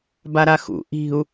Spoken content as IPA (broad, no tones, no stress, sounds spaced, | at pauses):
b a ɾ a x ṵ ʔ i̤ u̯